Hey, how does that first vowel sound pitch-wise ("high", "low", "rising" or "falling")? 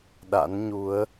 rising